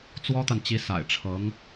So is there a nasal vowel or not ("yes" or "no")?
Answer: no